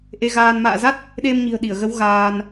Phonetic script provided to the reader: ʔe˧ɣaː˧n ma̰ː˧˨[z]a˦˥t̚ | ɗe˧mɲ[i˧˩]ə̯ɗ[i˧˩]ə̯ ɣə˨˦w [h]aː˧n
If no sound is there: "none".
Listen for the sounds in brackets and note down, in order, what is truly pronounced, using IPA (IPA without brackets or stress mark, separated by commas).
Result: z, i̤˨˩, i˧˩, ɣ